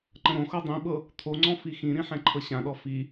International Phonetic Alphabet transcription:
ǃ ə̃ ɾ õ x ɤ dˤ ĩ ɓ ɤ | t̪ʰ o ŋ͡ǀ ɔ̃ f i x ĩ ɾ ĩ ħ ɛ̃ ǃʰ ɤ ɕ ã ɗ ɔ f i

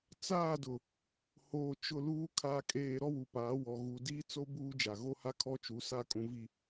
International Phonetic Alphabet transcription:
t͡s aː˦˨ d ʊ˨ | h oː˨ t͡ʃ ʊ˦˨ l uː˦ kʰ a˨ kʼ eː˨ ɾ ɔ˦ w u˨ p aː˨˦ w ɔ˨ ɣ u˨ d iː˦ t͡s o˦ b uː˦ d͡ʒ a˨ ɣ o˦ h a˦ kʰ ɔ˦ t͡ʃ u˨˦ s a˦˨ kʼ ũ˨ v i˨

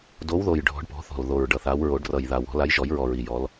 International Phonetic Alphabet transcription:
d o˨˦ w ð o˨˩ j ɖʱ ɔ̤˨˦ ɖ p ɔ̤˨˦ θ ɔ̤˨˩ l ð o˨˩ ɹ ɖ ʌ˨˩ θ a˨˦ w ɹ o˨˩˦ ɖ r ʌ˨˩ j ð a˨˩ w ɔ̤˨˩˦ l a˨˦ j ʒ ɔ˨˩˦ j ɹ ɔ˨˩ ɹ i˨˩ j ɔ˨˦ l

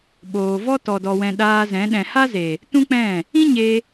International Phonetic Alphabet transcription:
ɓ oː˨ v ɔ˦ t ɔ˨ d ɔ˨ w ɛ̃˨ ɗ aː˧ z ɛ̃˨˦ ɗ ɛ̃˨ h a˦ z e˨ | t ũ˦ k͡p ɛ̃˦˨ | ĩ˦ ɲ e˧

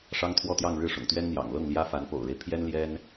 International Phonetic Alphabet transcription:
ʂ ɑ˥ ŋ t̪ʰ w ɔ˥˧ t̪ j ɑ˥˧ ŋ ɻ ɻ̩˥˩ ʂ ʊ̰˨˩ ŋ t̪ ɥ ɛ˥ n n̪ j ɑ̰˨˩ ŋ l ɤ˥˩ ŋ l j ä˥ f a˧˥ n p o̰˨˩ ʊ̯ ɻ e˦ ɪ̯ pʰ j ɛ˥ n l j ɛ˥ n

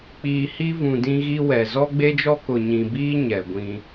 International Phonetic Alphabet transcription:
k͡p iː˨ h i˦ v ũ˨ d ĩ˦ ɣ i˦ w ɛ˨ z ɔ˦ ɡ͡b e˦ d͡ʒ ɔ˦ k ʊ˨ ɲ ĩ˨ b iː˦ ɲ ɛ˨ ɡʷ ĩ˦

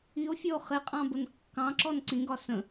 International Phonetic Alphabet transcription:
i o̯ fʲ ɔ o̯ χ ɪ qʼ ɑ̃ b ʊ n kː ɑ̃ ǁ ɔ n ǀ ĩ ɡ ɒ s ə̃

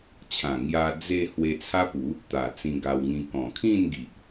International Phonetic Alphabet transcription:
t͡ɕʰ ã˨˩ ŋ j a˧ d͡z e˧ h w e˧ t͡sʰ a˦ p u˨˦ | t̪ a˨˩ t͡s ĩ˧ ɡ a˧ w ŋ ĩ˧ k ɔ̃˨˩ kʰ ĩ˥˧ n ɡ i˨ ʔ

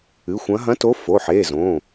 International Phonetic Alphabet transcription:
ɨ˩˧˩ xʷ ɐ̃˨˦ ɦ ɐ̃˨˦ t o˨˦ f o˩˧˩ ħ e˩˧˩ z õ˩˧˩

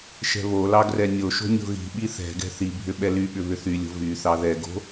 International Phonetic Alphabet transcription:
ʃ ɛ̤ β o l ɑ ɡ r ɛ nʲ o ʃ o̤ nʲ o̤ ɣ i̤ ɓ i θ ɛ̤ ɡ ɛ̤ θ i bʱ ʏ ɓ ɛ l y ɓ ʏ β ʏ θ y lʲ o̤ v y θ ɑ ð ɛ ɡ o̤

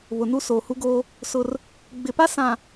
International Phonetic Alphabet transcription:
β ʊ˨ n u˦ s oː˨ h u˦ ɡ oː˦ | s ʊ˦ r | ɡ͡b ɪ˨ p a˦ s ã˨

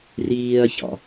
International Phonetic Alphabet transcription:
r iː ɐ̯ ç ɑ̰

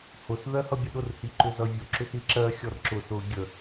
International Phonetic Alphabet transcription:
h ʊ s ð ɜ h ʌ bʲ ə ɗ ʊ r h i ǃ ʏ z ʌ vʲ ʊ ǁ ʏ s i ǁ ɜ xʲ ɔ r ǁ ʊ s ʊ ɡʲ ə

